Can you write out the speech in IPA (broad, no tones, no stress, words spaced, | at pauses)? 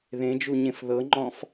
ðẽd͡ʒuɲẽf ðɤŋ͡ǃɔ̃f